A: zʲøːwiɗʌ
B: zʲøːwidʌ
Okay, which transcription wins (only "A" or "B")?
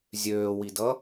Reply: B